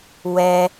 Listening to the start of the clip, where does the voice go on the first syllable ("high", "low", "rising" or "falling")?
high